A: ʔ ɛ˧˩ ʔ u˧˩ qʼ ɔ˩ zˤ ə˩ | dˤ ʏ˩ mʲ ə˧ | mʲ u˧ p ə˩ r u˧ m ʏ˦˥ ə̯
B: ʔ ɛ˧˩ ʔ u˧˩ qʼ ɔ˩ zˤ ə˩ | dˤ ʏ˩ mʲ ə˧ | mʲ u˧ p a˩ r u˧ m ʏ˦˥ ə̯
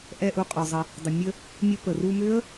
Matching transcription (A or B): A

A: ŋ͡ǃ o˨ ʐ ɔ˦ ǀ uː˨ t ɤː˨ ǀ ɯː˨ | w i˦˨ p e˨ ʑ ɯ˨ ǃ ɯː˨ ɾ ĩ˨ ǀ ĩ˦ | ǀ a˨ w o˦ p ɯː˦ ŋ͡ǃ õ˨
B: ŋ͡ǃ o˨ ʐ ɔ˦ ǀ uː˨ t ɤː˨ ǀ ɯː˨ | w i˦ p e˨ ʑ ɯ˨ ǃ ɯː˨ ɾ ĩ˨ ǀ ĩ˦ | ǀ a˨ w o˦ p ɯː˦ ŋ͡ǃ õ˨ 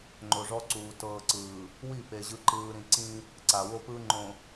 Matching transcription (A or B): A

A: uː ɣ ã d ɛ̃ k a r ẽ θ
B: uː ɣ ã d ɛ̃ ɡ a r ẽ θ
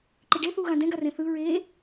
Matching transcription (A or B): B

